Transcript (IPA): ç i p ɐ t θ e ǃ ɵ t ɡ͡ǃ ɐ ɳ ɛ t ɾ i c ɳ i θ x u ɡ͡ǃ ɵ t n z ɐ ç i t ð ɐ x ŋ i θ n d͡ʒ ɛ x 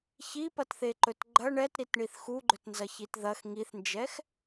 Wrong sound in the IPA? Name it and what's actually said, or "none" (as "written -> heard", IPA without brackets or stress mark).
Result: c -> t